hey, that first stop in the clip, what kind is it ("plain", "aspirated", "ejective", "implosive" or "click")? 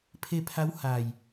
aspirated